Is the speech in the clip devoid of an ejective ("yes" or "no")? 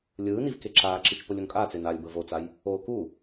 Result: no